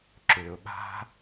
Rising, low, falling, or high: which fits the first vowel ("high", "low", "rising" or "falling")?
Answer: low